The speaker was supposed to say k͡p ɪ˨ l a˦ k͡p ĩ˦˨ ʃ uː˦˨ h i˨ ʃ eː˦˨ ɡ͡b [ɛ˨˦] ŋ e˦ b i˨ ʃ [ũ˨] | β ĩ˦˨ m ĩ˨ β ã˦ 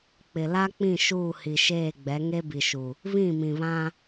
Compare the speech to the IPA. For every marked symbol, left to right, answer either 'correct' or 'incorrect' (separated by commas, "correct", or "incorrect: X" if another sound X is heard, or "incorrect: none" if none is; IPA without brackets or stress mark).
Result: correct, incorrect: u˨